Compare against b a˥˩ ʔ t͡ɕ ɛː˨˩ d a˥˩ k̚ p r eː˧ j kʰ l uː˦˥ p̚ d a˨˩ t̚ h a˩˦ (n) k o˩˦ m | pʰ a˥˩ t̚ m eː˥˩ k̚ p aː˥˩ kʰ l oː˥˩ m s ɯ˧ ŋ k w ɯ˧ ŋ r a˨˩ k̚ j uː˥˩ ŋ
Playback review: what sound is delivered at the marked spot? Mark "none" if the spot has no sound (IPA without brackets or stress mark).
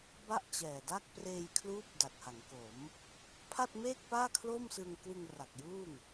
ŋ